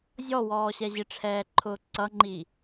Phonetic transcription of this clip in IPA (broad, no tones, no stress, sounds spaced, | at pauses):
zʲ ɔ w ɔː ɕ ɛ ʑ ɪ ʈ͡ʂʰ ɛː ǃʰ ʊː ǀ ʌ ŋ͡ǃ i